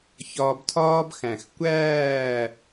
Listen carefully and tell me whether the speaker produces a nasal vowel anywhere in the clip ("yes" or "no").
yes